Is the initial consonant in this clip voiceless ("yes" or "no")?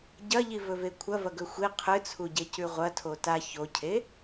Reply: no